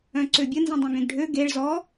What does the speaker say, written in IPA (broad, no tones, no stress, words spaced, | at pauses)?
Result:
œ̃ǀøbʲə nzĩdˤœ̃ɡẽɡɖʱø ɡeɭ zɔ